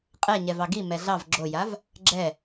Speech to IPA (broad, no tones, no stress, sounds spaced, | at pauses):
qʼ ɛ ɲ ɛ v ɑ ɡ i m ɛ ɮ ɑ v ɡ͡ǁ o j a v | ɡ͡ǁ ɛ